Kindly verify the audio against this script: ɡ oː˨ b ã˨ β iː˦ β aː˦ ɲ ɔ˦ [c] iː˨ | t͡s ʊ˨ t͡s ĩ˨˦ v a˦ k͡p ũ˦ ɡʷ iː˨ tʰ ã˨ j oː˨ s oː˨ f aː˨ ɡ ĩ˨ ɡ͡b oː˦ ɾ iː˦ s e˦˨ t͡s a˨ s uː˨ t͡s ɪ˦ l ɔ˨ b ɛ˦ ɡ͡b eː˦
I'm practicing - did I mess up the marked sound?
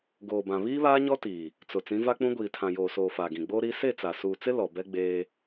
yes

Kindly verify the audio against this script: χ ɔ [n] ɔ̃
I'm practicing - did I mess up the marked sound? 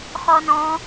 no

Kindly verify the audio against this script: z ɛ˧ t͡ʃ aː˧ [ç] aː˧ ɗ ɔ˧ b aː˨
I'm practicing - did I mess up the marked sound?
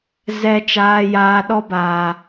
yes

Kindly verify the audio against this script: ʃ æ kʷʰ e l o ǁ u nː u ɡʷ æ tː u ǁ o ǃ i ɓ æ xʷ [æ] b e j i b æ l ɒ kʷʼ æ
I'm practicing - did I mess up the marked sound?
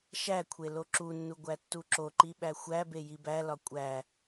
no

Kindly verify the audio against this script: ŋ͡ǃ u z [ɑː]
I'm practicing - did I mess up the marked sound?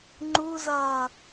yes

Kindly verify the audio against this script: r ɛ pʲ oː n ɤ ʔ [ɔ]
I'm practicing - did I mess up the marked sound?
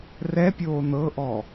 no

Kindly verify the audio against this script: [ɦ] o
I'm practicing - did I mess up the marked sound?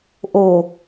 yes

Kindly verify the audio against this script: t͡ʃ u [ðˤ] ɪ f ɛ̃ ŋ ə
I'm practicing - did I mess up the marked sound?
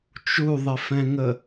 no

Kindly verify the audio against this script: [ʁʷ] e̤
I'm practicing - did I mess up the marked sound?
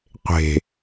yes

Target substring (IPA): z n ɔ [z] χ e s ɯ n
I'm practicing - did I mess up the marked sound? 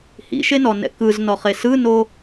yes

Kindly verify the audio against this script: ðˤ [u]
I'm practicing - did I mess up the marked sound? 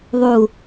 no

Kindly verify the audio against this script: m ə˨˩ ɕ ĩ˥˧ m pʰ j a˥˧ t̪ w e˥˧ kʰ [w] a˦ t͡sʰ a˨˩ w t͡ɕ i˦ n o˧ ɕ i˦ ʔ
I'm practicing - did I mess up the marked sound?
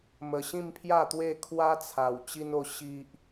no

